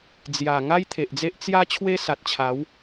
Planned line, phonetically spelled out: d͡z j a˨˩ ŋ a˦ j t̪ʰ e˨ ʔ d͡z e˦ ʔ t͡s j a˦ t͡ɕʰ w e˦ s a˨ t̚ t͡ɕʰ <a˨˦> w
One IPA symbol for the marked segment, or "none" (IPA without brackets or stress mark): a˨˦